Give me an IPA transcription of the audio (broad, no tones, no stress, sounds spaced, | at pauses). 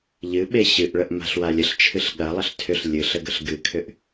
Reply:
ʎ ɨ ɓ e ɕ ɨ ʔ ɭ ə ʔ m a̤ ɬ w a lʲ ə ɬ t͡ʃʰ ɨ ɬ ɠ ɐ lˠ ə ɬ tʰ ʏ ɬ lʲ ɨ ɬ ə ɡ ə ɬ ɡ ɨ kʰ ʏ ʔ